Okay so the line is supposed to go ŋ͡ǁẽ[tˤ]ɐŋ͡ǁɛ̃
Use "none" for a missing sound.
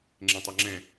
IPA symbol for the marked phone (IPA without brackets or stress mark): tˤ